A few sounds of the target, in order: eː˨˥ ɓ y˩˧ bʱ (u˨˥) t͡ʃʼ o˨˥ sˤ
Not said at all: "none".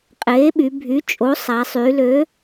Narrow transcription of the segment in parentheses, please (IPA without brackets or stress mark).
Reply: y˨˥